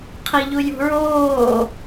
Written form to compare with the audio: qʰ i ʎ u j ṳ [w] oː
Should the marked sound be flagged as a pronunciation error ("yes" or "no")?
yes